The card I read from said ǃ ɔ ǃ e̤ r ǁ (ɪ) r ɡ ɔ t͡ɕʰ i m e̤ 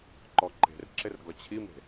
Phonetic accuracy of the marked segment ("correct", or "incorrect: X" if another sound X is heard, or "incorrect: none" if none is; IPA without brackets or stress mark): correct